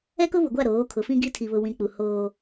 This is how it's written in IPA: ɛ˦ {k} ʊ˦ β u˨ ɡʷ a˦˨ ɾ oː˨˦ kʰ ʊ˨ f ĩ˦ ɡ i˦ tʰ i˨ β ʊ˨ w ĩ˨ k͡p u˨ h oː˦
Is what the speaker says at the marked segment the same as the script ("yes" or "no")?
yes